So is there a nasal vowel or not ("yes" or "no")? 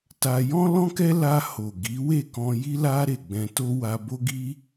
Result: yes